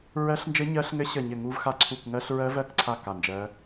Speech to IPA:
ɹ ɜ˦˥ ɬ n d͡ʒ ɘ˦˥ ɲ ɜ˦˥ ɬ ŋ ɘ˦˥ ɕ ə˦˨ ɲ ɘ˦˨ ŋ u˦˥ v x a˦˥ ǀʰ u˦˨ k ŋ ɜ˦˥ ɬ ɹ ɜ˦˥ v ɜ˦˥ k ǀʰ a˦˨ k a˦˨ n d͡ʒ ɜ˦˥

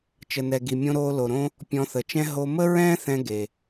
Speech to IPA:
t͡ʃ ə˩ n ɛ˩ ɡ i˩ mʲ õ˧ ɾ oː˧ l o˩ ɾ õ˧ | pʲ ɔ̃˧ θ ə˩ t͡ʃ ɛ̃˥ ɦ o˧ m ə˥ ɹ ɛ̃ː˥ θ ɛ̃˧ ɡ e˩

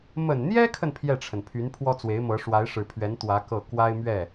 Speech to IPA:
m ə˨˩ n n̪ j ɛ˥ kʰ ə˨ n pʰ j ɛ˥˩ ʈ͡ʂʰ ə˩ n pʰ y˧˥ n pʰ w ɔ˥ t͡s w e˧˥ ɪ̯ m ɤ˧˥ ʂ w a˧˥ ɪ̯ ʂ ɻ̩˨˩ pʰ ɥ ɛ˧˥ n t̪ w ä˧˥ k ɤ˥˩ k w a˥ ɪ̯ m ɥ ɛ˥˩

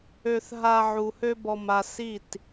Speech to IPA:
ø˨ θ ɦ a˨ ʕ u˨ h ø˦ b ɔ˨ m a˨ s i˦˨ t

